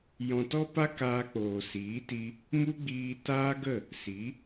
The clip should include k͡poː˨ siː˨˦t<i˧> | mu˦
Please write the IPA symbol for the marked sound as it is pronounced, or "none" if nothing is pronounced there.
i˧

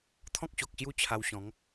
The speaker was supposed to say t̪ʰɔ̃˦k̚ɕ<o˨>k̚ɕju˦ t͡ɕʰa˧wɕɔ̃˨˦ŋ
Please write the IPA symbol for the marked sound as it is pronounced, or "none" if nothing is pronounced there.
o˨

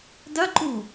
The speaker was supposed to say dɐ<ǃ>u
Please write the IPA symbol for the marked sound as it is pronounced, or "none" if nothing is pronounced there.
ǃ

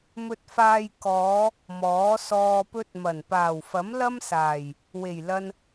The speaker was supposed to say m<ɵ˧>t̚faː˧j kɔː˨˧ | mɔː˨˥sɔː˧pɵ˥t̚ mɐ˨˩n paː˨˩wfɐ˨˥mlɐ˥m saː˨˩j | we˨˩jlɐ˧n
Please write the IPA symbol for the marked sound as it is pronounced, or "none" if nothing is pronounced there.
ɵ˧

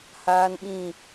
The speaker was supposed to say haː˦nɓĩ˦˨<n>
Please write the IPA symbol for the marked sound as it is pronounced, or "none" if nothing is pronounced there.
none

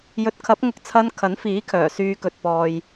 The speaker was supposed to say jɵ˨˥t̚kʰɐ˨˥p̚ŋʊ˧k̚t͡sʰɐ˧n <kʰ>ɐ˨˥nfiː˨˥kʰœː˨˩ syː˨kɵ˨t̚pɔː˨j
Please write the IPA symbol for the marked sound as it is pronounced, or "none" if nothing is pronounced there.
kʰ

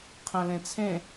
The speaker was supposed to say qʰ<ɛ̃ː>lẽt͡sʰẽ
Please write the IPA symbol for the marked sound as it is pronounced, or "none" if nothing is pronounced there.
ɛ̃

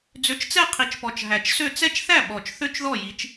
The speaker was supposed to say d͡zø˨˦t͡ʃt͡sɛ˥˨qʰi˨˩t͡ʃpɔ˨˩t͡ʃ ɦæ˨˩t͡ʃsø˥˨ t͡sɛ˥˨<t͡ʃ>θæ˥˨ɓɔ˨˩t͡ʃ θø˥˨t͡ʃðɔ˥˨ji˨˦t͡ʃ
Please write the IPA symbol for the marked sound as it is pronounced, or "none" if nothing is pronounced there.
t͡ʃ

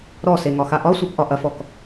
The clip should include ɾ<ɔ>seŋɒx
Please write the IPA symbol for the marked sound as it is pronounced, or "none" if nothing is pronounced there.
ɔ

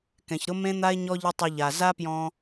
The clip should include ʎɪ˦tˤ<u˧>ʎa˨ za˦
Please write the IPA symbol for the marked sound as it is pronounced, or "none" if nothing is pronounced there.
ʊ˧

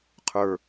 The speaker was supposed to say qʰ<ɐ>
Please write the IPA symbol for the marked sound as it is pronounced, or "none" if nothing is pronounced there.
ə˞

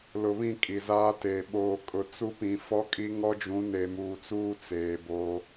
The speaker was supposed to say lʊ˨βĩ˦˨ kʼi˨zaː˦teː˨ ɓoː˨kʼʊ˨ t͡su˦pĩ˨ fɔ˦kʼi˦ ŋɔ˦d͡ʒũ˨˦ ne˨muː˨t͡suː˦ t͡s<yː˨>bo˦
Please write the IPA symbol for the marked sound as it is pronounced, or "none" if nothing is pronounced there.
eː˨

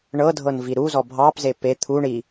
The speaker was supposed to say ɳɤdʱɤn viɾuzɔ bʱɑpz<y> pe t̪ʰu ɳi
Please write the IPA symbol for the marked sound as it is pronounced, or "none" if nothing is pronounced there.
e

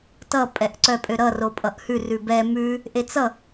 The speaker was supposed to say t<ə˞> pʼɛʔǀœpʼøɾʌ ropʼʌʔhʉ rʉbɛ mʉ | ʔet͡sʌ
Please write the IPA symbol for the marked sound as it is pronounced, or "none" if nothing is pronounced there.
ʌ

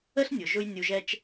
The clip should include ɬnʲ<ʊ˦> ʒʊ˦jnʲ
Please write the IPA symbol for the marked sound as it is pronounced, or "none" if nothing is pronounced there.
ʊ˨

